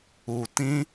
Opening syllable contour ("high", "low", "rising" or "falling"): low